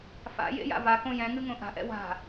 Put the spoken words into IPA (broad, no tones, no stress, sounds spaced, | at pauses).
f a̰ j ḛ j a̰ v a k õ j ɛ̃ ŋ ɨ ŋ õ ʔ a̤ ʔ ɛ̰ w a̤